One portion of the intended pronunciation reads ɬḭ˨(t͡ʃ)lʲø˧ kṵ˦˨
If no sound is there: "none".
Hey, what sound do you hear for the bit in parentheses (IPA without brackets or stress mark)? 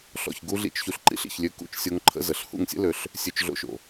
ç